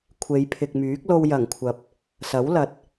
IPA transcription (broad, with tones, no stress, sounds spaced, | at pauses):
kʷʰ e˨˧ j pʰ ɪ˨ k̚ m yː˨˥ k̚ l o˧ w j ɐ˨˩ ŋ kʷʰ ɐ˨ p̚ | s ɐ˨˥ w l ɐ˨˥ t̚